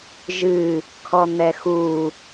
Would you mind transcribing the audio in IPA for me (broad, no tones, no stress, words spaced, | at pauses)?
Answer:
ʒɨ | kʰɔn̪ɛxu